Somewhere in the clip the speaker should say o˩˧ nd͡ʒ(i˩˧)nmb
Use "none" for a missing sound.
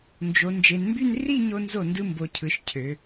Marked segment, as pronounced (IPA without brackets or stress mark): e˩˧